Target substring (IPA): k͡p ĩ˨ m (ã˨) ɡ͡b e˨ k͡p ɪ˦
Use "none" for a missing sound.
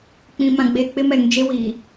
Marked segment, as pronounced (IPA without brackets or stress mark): ã˨